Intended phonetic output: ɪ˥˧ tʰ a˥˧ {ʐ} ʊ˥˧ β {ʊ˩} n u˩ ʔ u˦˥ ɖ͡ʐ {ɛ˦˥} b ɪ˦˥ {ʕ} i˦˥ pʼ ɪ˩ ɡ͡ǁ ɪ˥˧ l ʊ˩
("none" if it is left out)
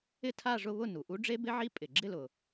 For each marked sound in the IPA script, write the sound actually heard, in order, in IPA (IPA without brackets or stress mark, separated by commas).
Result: ʐ, ʊ˥˧, e˦˥, ʕ